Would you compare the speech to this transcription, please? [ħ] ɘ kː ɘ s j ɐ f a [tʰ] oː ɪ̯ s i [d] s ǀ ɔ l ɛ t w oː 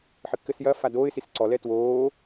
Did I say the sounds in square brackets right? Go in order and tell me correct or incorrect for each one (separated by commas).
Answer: correct, incorrect, incorrect